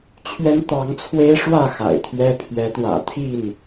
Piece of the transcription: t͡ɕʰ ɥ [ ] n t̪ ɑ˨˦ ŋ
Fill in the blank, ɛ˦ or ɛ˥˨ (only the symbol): ɛ˦